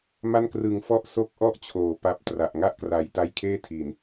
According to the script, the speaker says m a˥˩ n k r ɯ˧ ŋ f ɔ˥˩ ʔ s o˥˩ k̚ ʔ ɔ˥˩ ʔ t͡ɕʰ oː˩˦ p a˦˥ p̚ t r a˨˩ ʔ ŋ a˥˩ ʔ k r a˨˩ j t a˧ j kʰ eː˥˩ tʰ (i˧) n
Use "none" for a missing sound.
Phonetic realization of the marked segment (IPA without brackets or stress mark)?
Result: i˨˩